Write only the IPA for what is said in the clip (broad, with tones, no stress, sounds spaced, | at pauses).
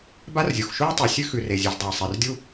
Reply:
b a˥ r zʲ u˩ x ʃ u˥ i̯ tˤ u˩ sʲ ʉ˥ x ʉ˩ r e˩ zʲ ʉ˩ z dˤ e˩ i̯ sˤ e˩ r dʲ u˥